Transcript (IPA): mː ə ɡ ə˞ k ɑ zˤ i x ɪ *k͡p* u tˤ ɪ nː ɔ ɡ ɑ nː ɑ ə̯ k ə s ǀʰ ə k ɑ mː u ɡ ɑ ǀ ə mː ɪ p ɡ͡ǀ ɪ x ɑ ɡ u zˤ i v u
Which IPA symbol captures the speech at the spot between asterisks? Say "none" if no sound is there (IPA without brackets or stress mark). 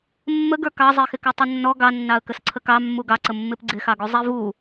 k